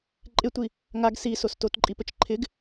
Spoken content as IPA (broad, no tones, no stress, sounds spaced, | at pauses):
ǃʼ ɪ tʷ i | ŋ a ɡ s i s o s t o t ǃʼ i p ə t͡ʃ ǃʰ ɪ ɡ